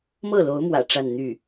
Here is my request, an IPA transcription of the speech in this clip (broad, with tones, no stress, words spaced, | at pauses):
mɤ˥˩lo˧˥ʊ̯mwä̰˨˩ ʈ͡ʂa˥˧nn̪y˥˩